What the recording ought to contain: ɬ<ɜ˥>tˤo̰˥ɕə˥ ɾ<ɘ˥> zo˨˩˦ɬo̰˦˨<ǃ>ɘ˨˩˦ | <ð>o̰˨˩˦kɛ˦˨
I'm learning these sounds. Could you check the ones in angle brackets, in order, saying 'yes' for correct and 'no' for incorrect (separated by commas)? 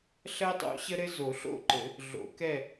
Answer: yes, yes, yes, no